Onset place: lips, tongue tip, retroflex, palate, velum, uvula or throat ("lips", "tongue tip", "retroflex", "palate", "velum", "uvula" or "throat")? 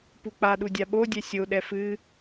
lips